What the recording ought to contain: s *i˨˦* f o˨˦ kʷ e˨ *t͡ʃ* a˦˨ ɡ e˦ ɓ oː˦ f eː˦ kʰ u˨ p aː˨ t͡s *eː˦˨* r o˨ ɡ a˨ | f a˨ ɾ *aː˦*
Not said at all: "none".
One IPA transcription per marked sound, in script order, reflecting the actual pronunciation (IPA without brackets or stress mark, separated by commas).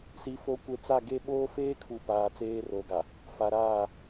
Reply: i˨, t͡s, eː˦, aː˦˨